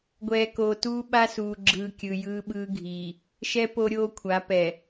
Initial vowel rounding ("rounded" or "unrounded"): unrounded